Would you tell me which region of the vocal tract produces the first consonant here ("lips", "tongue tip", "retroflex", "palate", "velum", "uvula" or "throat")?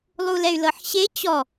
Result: tongue tip